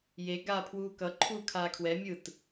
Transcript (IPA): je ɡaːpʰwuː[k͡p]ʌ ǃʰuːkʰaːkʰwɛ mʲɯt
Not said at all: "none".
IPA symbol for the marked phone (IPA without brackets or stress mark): k